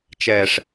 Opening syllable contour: low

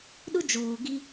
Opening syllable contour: high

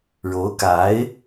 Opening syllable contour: rising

